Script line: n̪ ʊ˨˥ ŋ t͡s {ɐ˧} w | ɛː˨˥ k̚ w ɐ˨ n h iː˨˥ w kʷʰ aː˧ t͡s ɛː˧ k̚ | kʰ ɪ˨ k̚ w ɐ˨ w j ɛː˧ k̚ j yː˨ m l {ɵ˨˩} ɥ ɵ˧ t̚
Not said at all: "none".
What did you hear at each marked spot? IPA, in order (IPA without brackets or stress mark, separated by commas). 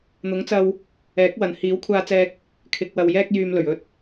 ɐ˧, ɵ˨˩